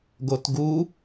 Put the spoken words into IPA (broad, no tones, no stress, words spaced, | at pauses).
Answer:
ɡotɡu